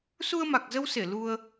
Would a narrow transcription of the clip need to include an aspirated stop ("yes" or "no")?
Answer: no